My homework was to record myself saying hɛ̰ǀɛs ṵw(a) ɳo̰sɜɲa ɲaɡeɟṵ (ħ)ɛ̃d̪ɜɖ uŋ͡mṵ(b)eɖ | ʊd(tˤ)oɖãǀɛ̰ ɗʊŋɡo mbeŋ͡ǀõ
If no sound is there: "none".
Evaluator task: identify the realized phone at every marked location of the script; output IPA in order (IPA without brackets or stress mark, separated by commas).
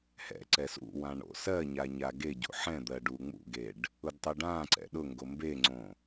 ã, ħ, ɡ, tˤ